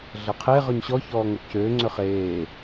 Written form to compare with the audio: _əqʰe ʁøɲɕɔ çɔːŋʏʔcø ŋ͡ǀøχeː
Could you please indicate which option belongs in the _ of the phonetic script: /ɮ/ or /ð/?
ɮ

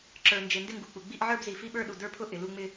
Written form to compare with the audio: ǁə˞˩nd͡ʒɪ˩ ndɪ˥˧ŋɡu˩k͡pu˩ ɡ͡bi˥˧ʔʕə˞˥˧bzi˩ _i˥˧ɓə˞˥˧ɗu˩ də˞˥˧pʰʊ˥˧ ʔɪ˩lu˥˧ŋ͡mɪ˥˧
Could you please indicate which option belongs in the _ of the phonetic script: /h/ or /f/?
f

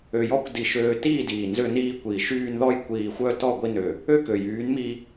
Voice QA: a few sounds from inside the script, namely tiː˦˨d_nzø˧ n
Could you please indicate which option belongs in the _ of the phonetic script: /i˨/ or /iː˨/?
iː˨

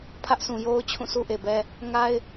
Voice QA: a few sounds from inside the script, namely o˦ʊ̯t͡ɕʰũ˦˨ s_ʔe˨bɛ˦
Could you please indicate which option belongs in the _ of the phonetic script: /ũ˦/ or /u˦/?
u˦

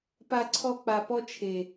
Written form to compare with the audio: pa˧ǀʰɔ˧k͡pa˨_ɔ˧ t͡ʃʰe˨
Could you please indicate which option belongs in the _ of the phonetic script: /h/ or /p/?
p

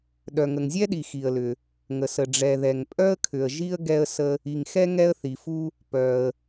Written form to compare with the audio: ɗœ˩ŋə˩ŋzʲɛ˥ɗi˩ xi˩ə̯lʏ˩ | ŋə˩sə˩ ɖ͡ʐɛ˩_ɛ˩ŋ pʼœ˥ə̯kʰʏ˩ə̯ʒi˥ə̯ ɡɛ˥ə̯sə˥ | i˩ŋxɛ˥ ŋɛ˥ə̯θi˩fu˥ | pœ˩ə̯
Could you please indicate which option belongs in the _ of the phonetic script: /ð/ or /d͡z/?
ð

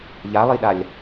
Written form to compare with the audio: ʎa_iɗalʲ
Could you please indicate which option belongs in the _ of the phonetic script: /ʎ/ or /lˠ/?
lˠ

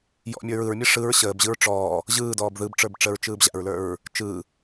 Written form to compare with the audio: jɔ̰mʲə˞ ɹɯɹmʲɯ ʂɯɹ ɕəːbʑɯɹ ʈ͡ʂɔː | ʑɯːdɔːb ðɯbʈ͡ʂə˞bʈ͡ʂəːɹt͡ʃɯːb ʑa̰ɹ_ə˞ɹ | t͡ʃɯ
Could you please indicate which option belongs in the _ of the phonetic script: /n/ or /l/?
l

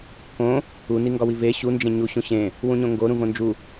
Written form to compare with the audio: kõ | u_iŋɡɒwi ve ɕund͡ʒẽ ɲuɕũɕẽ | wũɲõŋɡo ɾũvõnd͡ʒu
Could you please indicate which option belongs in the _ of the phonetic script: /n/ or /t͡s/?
n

